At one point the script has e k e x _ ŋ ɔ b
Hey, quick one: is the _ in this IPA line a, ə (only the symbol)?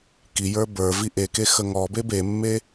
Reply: ə